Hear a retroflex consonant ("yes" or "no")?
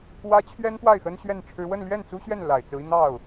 yes